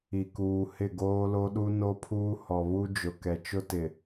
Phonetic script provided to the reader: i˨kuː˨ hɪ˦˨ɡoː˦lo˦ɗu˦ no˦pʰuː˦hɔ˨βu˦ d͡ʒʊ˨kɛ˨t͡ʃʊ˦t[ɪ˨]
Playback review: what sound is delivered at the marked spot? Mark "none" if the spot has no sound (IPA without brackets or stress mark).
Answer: ɪ˨